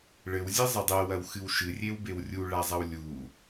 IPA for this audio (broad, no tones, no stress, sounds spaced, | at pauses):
ɭ ɘ w zʲ ɛ zˤ ɘ dˤ ɛ w ɐ w x ɨ w ʃ ɨ rʲ e w b e w rʲ u ɭ a zˤ ɐ w lʲ u